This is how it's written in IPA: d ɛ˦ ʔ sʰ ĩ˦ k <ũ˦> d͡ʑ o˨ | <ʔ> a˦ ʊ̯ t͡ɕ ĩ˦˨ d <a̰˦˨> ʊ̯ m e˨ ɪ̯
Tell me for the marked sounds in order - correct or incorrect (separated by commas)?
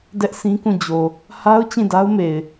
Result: incorrect, incorrect, incorrect